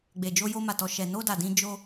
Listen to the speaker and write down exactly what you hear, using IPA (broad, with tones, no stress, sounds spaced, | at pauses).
ɡ͡b e˨ d͡ʒ o˧ j o˧ m a˨ t ɔ˨ ʃ ɛ˨ n o˧ d a˨ d ĩ˧ d͡ʒ o˧